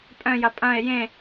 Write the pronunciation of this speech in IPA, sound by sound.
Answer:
pʼ œ̃ j ɐ pʼ ɐ̃ e̯ j ẽ

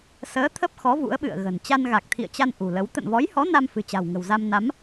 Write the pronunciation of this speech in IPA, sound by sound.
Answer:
s əː˨˦ t̪ʰ ə˦˥ p̚ x ɔ˨˦ v ṵ˧˥ ə̯ ɓ ɨ̰˧˨ ə̯ ɣ ə̤˨˩ n t͡ɕ a˧ n ɣ a˨˩ k̚ t̪ʰ ḭ˧˨ ə̯ t͡ɕ a˧ n ʔ ṳ˨˩ l ə˨˦ w t̪ ə̰˧˨ n v ɔ˨˦ j h ɔ˨˦ n a˧ m f ɨ̤˨˩ t͡ɕ a̤˨˩ w ŋ ə̤˨˩ w z a˧ m n a˨˦ m

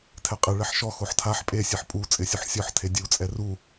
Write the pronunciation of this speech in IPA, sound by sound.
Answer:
tʰ ɛ qʼ ɪ ɭ ɛ ħ ʃ ɔ x o ħ tʰ a ħ pʼ e sʲ e ħ pʼ u t͡sʼ ɪ sʲ u ħ sʲ ɔ ħ tʰ e dʲ u t͡sʼ ɛ r u

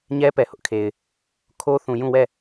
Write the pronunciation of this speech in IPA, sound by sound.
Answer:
ɲ ɛ˦ p ɛ˨ h ʊ˦ ʔ kʰ e˨ ɪ̯ | kʰ o˦ θ ũ˨ j ũ˦˨ w ɛ˦˨

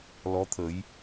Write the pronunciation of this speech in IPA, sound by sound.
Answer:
l ɔ˧˥ t̪ʰ ə˨˩˦ j

